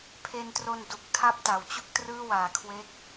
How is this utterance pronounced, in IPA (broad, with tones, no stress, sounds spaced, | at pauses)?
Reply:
pʰ e˧ n t r o˧ n d u˨˩ k̚ tʰ a˥˩ p̚ t a˩˦ w t͡ɕ u˥˩ k̚ t r ɯː˥˩ w aː˨˩ kʰ w e˦˥ k̚